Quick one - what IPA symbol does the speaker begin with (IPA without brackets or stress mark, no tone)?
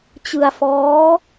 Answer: t͡ɕ